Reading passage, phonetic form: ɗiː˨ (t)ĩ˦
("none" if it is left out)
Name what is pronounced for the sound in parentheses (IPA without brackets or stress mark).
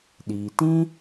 t